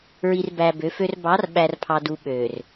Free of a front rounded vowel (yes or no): no